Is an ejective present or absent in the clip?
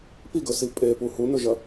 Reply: present